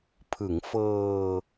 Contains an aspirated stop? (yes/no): yes